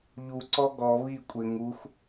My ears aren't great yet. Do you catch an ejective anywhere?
yes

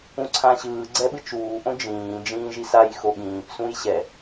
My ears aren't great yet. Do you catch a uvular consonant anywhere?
no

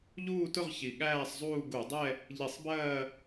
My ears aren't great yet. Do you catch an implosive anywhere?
yes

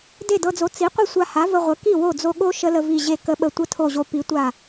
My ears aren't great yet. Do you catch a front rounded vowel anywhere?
no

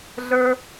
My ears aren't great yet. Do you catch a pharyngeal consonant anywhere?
no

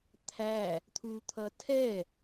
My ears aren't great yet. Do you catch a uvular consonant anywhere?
no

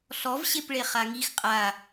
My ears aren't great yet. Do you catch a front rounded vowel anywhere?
no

